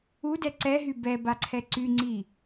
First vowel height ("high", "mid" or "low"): high